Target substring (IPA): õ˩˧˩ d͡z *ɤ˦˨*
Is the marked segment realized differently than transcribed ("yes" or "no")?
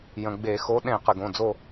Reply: yes